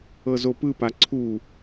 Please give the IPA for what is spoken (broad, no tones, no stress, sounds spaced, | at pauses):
ɤ z o p ɯ p a ǀʰ u